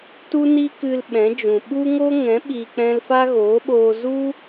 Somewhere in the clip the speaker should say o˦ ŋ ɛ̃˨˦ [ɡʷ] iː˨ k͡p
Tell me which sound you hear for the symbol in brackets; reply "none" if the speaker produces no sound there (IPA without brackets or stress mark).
ɓ